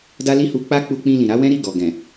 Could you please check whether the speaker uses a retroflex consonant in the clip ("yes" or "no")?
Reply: no